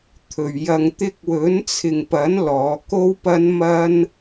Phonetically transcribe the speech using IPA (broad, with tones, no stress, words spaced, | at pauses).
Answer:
t̪ʰɵ˧ɥ jɐ˧ŋ t̪ɪ˧k̚wɵ˨˥nt͡sʰɪ˨ŋpɐ˨˥n lɔː˨˧ko˥wpɐ˥n mɐ˥n